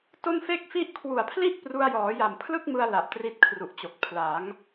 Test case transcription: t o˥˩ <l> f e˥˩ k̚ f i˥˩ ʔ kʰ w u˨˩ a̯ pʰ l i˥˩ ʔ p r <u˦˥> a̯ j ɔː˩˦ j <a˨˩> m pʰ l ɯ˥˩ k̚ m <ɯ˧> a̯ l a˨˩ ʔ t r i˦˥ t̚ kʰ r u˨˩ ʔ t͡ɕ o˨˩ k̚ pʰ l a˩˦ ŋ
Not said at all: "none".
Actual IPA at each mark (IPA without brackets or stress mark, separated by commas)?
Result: n, u˧, a˨˩, ɯ˧